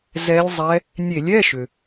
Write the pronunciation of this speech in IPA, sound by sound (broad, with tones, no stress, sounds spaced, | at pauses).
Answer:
z ɛ˧˥ lʲ zˤ ɛ˧˥ | nʲ e˧˩˧ lʲ ɛ˧˥˧ ʃ ʏ˩